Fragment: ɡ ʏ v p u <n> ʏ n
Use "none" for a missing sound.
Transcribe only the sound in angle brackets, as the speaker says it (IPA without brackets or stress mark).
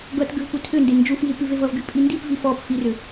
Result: tʰ